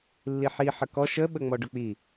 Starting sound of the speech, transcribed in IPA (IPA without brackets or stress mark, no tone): lː